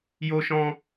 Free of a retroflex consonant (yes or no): yes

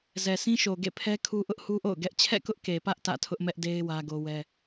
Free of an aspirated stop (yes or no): no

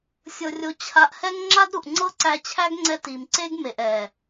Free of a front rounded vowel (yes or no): yes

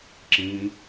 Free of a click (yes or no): no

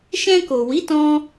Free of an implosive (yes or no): yes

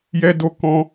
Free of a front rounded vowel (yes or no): yes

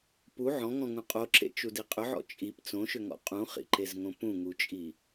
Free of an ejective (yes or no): no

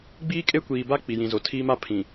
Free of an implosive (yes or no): yes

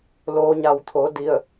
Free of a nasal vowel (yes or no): yes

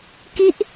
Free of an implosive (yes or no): yes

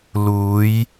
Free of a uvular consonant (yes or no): yes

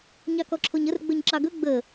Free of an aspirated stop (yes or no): no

